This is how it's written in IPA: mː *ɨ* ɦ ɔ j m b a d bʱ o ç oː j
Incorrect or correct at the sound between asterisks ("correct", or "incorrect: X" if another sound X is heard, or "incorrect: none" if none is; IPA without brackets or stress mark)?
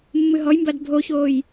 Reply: correct